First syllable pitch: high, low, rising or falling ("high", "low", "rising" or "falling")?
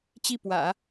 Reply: falling